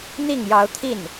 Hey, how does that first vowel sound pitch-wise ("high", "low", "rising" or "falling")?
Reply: falling